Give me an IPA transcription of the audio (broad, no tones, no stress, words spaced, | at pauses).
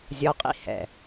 zʲɔqʼḭ hɛ̰